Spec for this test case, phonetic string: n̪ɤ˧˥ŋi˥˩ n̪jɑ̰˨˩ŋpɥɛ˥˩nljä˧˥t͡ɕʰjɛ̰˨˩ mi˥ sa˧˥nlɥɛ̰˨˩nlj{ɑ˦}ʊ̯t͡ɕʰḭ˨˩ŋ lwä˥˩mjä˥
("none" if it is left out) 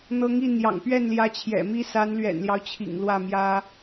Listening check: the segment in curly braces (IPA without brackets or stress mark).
ɑ˦